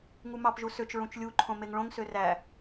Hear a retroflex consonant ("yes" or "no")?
yes